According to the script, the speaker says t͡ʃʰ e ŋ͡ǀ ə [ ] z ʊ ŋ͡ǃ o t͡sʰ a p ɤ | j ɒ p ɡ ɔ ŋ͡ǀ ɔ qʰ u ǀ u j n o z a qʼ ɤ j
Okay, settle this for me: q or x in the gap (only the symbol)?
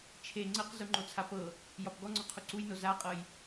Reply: q